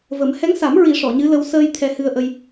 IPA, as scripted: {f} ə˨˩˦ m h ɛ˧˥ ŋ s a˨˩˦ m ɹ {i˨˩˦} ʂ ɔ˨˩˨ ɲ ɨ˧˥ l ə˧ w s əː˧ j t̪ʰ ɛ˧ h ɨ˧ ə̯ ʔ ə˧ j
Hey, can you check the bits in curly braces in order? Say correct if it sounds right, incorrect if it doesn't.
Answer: incorrect: v, correct

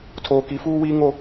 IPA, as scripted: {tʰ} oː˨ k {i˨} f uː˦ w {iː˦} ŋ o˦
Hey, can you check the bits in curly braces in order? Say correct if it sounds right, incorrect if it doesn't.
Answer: correct, correct, correct

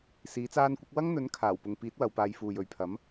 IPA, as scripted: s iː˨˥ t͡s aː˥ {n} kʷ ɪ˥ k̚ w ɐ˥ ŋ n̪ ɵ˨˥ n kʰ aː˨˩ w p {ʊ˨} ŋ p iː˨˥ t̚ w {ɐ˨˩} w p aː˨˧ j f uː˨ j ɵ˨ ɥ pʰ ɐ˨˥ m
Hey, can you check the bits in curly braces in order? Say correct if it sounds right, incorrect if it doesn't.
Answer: correct, correct, incorrect: ɐ˨˧

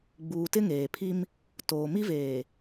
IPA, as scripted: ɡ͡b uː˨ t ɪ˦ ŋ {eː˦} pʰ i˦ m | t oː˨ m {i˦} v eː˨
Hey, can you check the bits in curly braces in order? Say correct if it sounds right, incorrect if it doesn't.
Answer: incorrect: eː˨, correct

